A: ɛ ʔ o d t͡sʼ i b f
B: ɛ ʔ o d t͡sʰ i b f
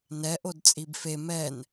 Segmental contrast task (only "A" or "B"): A